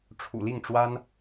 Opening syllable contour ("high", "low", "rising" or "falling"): low